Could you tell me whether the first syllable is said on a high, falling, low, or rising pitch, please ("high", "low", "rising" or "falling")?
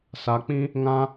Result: rising